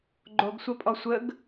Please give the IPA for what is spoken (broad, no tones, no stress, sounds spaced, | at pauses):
ɡ͡ǃ o ɡ sʷ ɐ pʼ ɔ sʷ ə ɡ